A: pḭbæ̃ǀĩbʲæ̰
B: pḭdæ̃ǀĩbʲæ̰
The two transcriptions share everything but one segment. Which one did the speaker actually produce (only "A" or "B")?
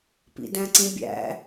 B